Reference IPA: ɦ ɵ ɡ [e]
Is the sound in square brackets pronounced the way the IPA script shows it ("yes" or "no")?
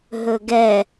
no